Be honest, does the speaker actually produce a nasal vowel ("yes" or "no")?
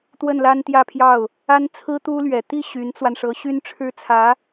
no